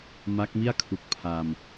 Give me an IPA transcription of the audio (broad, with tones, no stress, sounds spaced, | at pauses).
m a˦˥ k̚ m i˥˩ a̯ kʰ u˨˩ k̚ pʰ a˧ m